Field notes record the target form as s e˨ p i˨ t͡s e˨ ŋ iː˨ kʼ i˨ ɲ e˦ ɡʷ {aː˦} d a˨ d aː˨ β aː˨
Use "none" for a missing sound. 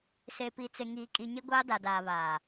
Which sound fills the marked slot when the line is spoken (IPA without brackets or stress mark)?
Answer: aː˦